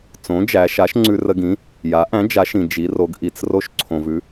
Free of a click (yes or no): no